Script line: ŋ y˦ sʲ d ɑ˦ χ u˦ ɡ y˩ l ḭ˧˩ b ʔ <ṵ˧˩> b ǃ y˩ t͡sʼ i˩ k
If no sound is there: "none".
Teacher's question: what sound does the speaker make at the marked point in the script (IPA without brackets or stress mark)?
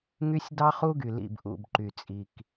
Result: ṵ˧˩